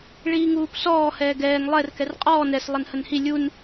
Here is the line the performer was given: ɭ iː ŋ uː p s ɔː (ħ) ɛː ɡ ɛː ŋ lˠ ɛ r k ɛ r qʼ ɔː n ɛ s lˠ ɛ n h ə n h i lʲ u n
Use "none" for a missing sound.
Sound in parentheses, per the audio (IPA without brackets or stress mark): h